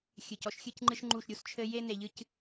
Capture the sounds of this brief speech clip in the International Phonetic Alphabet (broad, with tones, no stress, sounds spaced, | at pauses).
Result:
xʲ ɨ˨ c ɔ˦ ʃ xʲ ɨ˦ c ŋ͡ǃ ɨ˦ ʃ ŋ͡ǃ u˦˨ ʃ ɾʲ u˦ s t͡ʃʰ ɘ˦ j e˦ n e˨ ʎ ɨ˦ c